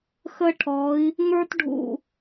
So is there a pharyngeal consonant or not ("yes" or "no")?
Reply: no